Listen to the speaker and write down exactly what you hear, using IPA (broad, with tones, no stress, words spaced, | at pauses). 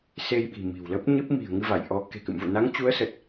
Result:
se˧jɓi̤˨˩ mi̤˨˩wlə˦˥p̚ɲɨ˦˥p̚ mi̤˨˩ə̯ ŋɨ˧va˧˩jʔɔ˨˦ ke̤˨˩kɨ̰˧˨mvṵ˧˨ na˨˦ŋt͡ɕu˨˦ə̯sə˨˩t̚